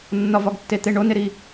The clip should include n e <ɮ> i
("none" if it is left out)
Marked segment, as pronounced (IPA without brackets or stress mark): ɾ